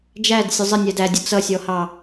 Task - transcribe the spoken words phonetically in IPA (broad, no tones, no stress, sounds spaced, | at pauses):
d͡ʒ æ d sʲ ʊ zˤ ɪ nʲ æ d æ dʲ ʊ t͡s ʌ sʲ ɔ h ɑ